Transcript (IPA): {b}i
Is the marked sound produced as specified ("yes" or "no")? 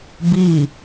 yes